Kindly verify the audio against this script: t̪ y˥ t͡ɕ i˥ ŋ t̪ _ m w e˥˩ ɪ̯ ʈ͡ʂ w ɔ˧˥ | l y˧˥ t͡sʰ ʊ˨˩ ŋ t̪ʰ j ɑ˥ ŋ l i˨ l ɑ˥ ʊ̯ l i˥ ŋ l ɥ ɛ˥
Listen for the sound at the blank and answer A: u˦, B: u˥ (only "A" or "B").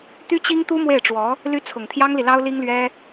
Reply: B